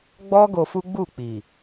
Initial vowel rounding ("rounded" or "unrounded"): rounded